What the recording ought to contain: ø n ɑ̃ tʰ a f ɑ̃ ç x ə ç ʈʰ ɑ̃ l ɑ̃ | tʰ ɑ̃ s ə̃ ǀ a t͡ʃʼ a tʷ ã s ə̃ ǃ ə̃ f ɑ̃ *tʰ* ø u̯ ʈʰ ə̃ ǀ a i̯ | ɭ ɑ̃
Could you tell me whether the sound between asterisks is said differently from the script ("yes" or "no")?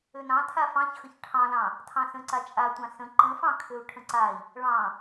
yes